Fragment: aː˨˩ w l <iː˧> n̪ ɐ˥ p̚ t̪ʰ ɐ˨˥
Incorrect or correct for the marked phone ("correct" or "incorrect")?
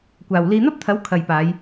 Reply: correct